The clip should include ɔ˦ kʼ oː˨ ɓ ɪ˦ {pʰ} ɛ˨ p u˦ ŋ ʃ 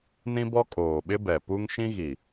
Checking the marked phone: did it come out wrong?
yes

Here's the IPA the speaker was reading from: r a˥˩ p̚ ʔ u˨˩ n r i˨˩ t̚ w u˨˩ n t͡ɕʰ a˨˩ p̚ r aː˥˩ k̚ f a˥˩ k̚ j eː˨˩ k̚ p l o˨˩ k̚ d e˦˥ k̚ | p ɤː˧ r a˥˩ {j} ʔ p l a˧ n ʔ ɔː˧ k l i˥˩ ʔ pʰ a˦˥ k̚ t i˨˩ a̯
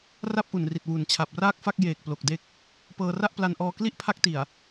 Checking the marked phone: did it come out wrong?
yes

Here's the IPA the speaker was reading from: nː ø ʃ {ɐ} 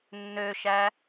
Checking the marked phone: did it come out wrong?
yes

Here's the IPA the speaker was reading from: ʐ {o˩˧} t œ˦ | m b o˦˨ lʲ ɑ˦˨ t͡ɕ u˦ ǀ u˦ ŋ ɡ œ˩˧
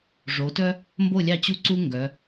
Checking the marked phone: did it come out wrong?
no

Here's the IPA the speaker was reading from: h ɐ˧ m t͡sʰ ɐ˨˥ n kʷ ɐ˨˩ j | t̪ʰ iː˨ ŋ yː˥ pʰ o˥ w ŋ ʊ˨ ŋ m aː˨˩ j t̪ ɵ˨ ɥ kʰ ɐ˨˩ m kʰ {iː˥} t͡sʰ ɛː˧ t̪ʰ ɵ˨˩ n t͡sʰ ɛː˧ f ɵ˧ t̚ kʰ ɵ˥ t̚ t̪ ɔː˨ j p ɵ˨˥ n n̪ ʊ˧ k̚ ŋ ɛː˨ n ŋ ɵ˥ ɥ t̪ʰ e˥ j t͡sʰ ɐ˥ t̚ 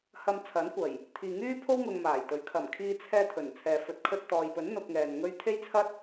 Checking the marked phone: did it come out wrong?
yes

